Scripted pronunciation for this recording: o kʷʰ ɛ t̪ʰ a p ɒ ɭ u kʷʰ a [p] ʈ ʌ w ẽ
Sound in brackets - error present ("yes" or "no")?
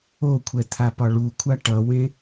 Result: yes